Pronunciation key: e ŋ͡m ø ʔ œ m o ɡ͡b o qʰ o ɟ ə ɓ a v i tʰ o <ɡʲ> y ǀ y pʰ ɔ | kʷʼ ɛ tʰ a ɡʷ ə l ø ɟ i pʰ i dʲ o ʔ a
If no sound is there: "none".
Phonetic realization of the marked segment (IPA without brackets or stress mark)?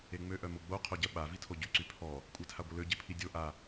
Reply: ɟ